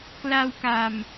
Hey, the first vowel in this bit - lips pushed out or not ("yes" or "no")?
no